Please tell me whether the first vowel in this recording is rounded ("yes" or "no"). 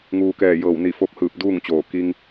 yes